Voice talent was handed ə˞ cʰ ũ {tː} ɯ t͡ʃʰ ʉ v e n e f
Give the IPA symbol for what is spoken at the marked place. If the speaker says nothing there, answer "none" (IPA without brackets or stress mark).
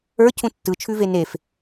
tː